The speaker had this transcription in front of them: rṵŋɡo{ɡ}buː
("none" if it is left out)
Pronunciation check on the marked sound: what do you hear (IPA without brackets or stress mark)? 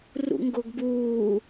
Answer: ɡ